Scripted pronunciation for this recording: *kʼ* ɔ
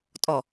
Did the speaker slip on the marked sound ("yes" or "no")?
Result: yes